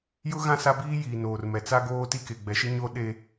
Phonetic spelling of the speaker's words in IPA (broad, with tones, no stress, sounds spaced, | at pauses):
j ʊ˦ ɣ ã˦˨ s a˦ b iː˦ j iː˨ n oː˨ r m ɛ˨ t͡s a˦ ɡ oː˦ t i˦ k e˨ ɡ͡b ɛ˨ ʃ ɪ˦ ɲ o˦ ɗ e˦